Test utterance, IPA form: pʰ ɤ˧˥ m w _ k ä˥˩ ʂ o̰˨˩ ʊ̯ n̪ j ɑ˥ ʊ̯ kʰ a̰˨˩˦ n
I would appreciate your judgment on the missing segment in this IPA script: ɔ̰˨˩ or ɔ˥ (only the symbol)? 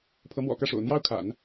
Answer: ɔ̰˨˩